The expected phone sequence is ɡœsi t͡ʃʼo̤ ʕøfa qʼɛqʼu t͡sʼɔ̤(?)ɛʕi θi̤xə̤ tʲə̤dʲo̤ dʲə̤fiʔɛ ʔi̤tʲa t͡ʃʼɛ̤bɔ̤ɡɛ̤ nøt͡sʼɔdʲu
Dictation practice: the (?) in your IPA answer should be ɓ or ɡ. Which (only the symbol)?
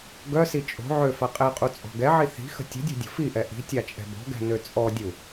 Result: ɡ